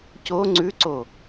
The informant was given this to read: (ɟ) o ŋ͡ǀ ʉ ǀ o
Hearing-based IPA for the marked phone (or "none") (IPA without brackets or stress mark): c